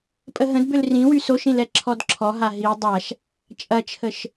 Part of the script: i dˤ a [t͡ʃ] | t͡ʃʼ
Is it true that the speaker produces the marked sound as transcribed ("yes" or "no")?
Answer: no